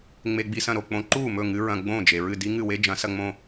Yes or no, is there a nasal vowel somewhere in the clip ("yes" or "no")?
yes